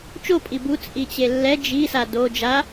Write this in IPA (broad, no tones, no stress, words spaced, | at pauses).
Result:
t͡ʃopʼi bu t͡sʼit͡ɕelːɛ d͡ʒisa do d͡ʒa